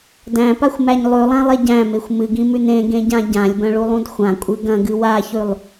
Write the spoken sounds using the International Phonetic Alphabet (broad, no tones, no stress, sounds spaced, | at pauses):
d æ̃ p a xʷ m æ ɲ lˠ ʉ lˠ ã lˠ e ɟ æ̃ m e xʷ m ɨ ɡ ĩ m ʉ n ẽ ɡ ẽ ɟ ã ɟ ã lʲ b ɐ̃ ɭ u lˠ ũ d xʷ ã kʷʼ ɨ ɡ ɐ̃ ɡ ɨ w a ç ʉ lˠ